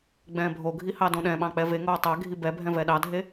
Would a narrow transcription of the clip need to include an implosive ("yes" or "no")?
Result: yes